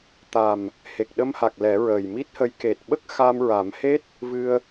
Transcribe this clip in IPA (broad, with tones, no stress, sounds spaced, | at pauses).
t̪ a˨˩ m | h e˨˩ k̚ ɗ ə˧ m h a˨˩ k̚ l ɛ˨˩˦ ɹ əː˨˩ j m i˦˥ t̚ h ə˧˥ j k e˨˩ t̚ ɓ ə˦˥ k̚ x a˧ m ɹ a˨˩˦ m h e˦˥ t̚ | v ɨ˧ ə̯